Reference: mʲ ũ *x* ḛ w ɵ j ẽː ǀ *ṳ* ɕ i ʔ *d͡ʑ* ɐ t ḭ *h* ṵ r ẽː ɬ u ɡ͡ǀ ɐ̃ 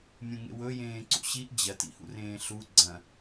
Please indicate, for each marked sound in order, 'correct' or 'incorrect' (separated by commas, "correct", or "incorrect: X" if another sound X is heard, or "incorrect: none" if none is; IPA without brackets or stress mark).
incorrect: ŋ, incorrect: ṵ, correct, correct